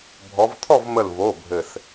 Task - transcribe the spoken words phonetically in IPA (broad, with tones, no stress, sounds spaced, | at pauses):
bʱ ɔ˨˦ v tʰ ɔ˥˨ v m ə˧˩ l v o˩˧˩ bʱ ɘ˧˩ s